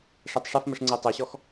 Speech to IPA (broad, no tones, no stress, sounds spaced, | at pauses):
ʂ ɛ tˤ ʂ ɐ f m ɘ ʂ ŋ͡ǀ ɛ tˤ ɛ ɕ ɔ x